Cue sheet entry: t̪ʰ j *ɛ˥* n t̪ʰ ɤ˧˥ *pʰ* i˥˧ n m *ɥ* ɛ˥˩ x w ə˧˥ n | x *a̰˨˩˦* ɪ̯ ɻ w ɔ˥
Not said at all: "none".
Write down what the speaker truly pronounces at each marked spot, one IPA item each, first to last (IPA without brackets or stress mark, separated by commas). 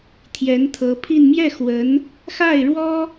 ɛ˧˥, pʰ, j, a˥˩